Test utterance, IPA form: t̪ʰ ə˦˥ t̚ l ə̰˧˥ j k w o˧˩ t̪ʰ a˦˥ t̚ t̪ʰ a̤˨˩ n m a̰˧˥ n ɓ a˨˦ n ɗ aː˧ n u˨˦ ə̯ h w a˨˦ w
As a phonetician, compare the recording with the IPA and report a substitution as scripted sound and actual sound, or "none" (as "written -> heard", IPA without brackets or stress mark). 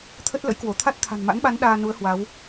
none